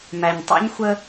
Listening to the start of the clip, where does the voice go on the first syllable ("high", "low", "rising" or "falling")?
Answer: low